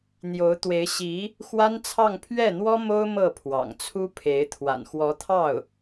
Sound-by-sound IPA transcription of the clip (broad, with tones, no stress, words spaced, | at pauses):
n̪jo˧˥ʊ̯t̪we˧˥ɪ̯ɕi˧˥ | xwa˥nt͡sʰɑ˥˧ŋ pʰɥɛ˥˩n̪wɔ˥ mo˥ʊ̯ mɤ˥˩pʰwɑ̰˨˩ŋt͡sʰu˥pʰe˧˥ɪ̯ t̪ʰwa̰˨˩nxwɔ˧˥t̪ʰɑ˥˩ʊ̯